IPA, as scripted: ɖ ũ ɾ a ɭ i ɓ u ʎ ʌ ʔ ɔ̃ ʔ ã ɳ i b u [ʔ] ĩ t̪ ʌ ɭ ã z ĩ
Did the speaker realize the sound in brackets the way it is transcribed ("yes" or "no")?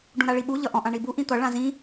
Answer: yes